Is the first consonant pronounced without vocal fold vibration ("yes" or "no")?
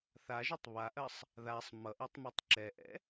yes